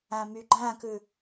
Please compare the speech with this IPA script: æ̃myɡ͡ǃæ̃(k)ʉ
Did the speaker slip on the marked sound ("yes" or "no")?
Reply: no